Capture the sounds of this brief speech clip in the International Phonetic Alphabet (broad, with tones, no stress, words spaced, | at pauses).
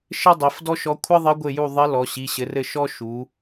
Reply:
ʃɘ˥dˤi˩˧f dɔ˥ʃɔ˧˥ kʷʰɘ˥ðˤɘ˧˥ɡʷɘ˦˨ju˦˨ ðˤɘ˧˥ lɔ˩˧ɕi˩˧˩ɕɘ˩˧rɘ˦˨ ʃɔ˥ ʃu˩˧